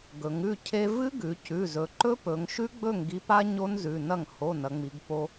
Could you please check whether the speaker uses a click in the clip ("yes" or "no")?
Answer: yes